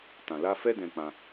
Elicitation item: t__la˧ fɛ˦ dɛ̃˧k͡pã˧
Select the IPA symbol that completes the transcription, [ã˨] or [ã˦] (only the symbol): ã˨